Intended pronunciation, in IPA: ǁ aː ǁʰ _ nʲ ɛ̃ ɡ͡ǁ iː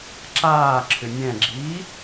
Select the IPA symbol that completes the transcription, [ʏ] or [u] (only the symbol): ʏ